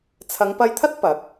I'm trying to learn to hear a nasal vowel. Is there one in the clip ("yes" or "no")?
no